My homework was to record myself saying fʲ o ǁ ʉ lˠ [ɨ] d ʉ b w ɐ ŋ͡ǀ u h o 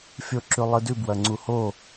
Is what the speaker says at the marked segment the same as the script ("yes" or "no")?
yes